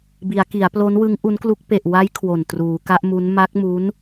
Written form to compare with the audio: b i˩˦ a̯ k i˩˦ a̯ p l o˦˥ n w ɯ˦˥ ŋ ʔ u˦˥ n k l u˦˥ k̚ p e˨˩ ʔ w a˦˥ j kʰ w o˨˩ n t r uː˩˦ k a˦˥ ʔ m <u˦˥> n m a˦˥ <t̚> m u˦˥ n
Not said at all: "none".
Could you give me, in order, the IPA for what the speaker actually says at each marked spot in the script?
u˦˥, k̚

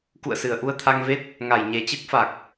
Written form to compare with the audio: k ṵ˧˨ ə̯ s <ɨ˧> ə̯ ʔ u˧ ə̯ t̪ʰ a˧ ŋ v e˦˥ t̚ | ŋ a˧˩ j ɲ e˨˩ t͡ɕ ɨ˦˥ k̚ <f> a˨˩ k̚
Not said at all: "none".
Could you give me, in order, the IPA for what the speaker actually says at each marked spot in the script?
ɨ˨˩, f

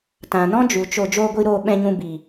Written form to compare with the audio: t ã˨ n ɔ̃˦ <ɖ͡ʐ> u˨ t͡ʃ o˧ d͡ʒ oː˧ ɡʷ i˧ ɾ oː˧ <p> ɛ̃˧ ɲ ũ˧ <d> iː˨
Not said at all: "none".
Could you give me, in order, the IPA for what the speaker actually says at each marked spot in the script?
d͡ʒ, ɓ, b

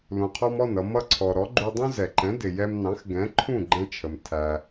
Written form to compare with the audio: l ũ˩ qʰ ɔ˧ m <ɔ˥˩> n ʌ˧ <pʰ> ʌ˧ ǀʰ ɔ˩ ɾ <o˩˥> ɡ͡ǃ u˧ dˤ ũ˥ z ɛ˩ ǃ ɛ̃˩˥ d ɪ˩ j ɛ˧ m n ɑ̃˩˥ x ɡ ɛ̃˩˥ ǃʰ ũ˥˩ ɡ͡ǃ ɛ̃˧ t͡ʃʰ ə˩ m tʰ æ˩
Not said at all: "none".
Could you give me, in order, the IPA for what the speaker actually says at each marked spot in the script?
ɔ˥˩, m, ɔ˩˥

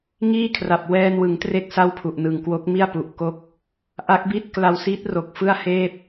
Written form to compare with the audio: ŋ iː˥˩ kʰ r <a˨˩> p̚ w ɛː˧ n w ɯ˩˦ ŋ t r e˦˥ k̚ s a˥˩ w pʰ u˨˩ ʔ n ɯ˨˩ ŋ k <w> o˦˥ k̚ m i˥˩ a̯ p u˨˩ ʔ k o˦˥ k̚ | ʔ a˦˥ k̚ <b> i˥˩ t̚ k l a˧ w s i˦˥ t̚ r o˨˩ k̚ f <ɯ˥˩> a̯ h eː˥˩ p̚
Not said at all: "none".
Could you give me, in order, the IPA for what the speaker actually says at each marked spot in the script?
a˨˩, w, b, ɯ˥˩

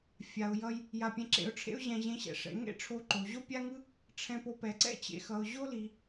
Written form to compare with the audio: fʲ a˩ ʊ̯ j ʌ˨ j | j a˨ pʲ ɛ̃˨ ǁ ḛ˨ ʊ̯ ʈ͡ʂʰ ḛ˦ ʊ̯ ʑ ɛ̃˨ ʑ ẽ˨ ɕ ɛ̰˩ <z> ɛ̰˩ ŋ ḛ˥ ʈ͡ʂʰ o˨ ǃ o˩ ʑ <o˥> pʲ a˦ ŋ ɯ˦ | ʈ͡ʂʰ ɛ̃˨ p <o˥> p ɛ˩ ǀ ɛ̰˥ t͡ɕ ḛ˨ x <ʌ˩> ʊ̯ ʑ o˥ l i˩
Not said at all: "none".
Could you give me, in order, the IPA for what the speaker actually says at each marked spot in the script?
ʂ, o˥, o˨, ʌ˩

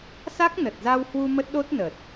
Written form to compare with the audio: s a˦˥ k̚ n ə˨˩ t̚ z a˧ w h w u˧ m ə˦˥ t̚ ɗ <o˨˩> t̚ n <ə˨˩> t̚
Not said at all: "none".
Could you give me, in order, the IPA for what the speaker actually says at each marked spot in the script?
o˦˥, ə˨˩

